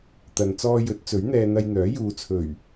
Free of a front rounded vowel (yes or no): no